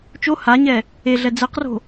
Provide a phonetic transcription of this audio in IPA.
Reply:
t͡ʃ o h a ɲ ɛ | e ɮ ɛ d͡z ɛ q r o̤

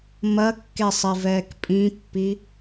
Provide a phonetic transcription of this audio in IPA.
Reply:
m ɐ kː e sˤ i v ɛː k pʼ ĩ pː i

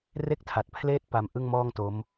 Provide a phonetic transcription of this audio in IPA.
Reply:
r e˦˥ k̚ tʰ a˨˩ t̚ pʰ l eː˦˥ t̚ p a˦˥ m ʔ ɯ˥˩ ŋ m ɔː˥˩ ŋ t o˦˥ m

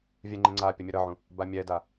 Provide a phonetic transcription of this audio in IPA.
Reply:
vʲ ɛ ŋ͡ǃ ẽ ŋ͡ǀ a pʲ ʌ mʲ ʌ ɾ ʌ ʕ ũ | b a mʲ ɛ d a

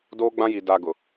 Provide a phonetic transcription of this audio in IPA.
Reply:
d oː˦ ɡ͡b ã˦ j i˨ d a˨ ɡ ʊ˨

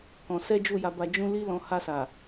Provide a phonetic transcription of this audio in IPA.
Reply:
k ɔ̃˧ s ɛ˦ d͡ʒ u˦˨ j a˧ b a˧ d͡ʒ ũ˦ l i˦ l ɔ̃˧ h a˧ s a˨

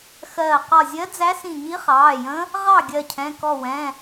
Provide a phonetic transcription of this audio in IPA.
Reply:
x ɜː˧˩ q ɒ˧˩ zʲ ɜ˧˥ d͡z æ˧˥ s ĩ˧˩ ɲ i˧˥ χ ɑː˩˧˩ j ə̃˧˥ | ʁ ɑ˥˨ ɡʲ ɜ˧˩ cʰ ɛ̃˩˧˩ k ɔ˧˩ w ɛ̃˩˧˩

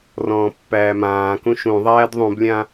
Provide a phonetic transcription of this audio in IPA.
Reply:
r ɔ̃ː pː æː m ãː k ũ ʃ ũ ðˤ æː d ðˤ ũ b lʲ ã

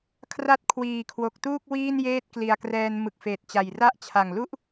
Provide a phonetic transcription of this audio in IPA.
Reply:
kʰ r a˦˥ t̚ kʰ w iː˨˩ kʰ w o˨˩ k̚ t uː˥˩ k̚ w iː˥˩ n j eː˥˩ t̚ k l i˨˩ a̯ k r ɛː˧ n m ɯ˨˩ k̚ f eː˨˩ t̚ t͡ɕ a˨˩ j r a˦˥ ʔ t͡ɕʰ a˨˩ ŋ l u˥˩ ʔ

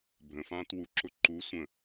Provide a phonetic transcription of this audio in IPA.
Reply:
bʱ ə̃ f ãː t w u ǁ ʊ ǃ u sʷ ə̃

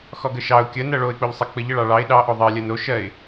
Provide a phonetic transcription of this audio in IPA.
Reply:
x ɔ ɡ ə ʃ ɑ ʊ̯ kʲ ə n ɜ ɭ o ɪ̯ k͡p o ʎ sˤ ə k͡p ə ʎ ə ɭ ɑ ɭ ɑ ɪ̯ ɗ ɑ ʔ o ðˤ ɜ lʲ ɜ n o ʃ ɜ ɪ̯

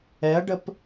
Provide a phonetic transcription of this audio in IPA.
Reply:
ɛ ɐ̯ ɖ ə p

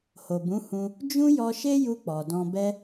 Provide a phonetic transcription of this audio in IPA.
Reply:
h o˨ b ũ˨˦ h ũ˧ | d͡ʒ ũ˦ j ɔ˧ ʃ e˦ j u˧ k͡p ɔ˨ d ɔ̃˧ b ɛ˦

